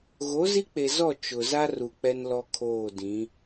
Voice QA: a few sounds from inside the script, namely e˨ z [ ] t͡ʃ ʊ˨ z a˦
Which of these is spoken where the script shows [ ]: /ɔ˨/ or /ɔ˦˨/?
ɔ˦˨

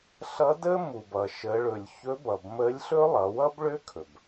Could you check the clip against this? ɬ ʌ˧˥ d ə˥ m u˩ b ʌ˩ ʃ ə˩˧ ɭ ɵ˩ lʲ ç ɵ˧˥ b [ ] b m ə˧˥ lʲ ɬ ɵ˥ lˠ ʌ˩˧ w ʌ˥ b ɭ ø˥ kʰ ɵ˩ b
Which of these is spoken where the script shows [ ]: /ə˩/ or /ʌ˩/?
ʌ˩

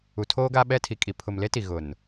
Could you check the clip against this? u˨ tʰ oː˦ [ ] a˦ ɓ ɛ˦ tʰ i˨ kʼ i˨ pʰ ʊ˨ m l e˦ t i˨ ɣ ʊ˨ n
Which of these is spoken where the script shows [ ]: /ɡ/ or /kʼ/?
ɡ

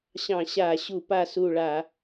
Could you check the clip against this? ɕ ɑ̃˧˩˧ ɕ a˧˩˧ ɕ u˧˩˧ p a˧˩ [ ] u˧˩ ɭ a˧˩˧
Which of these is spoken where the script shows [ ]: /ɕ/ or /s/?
s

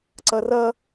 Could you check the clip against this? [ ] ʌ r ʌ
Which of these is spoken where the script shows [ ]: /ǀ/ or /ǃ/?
ǀ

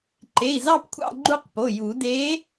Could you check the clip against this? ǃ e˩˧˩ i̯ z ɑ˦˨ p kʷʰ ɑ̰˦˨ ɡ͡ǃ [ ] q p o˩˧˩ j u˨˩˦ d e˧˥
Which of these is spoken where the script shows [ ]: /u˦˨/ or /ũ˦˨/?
u˦˨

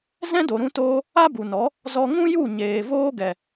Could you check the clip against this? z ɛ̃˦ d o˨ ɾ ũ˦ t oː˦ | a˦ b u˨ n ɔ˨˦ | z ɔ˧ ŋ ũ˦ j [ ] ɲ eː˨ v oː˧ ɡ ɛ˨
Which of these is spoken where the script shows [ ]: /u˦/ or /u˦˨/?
u˦˨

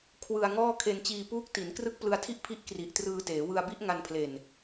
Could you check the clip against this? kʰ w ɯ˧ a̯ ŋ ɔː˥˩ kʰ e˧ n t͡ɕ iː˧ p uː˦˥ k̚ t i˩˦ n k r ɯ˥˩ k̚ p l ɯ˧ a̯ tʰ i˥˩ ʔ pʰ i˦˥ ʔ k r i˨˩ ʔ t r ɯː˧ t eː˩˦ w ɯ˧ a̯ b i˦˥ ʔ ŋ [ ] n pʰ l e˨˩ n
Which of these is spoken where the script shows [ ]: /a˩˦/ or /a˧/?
a˧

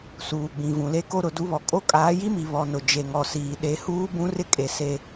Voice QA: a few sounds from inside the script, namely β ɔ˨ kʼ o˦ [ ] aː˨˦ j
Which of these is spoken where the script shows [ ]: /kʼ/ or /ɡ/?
kʼ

